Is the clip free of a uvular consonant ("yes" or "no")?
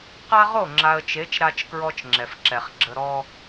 no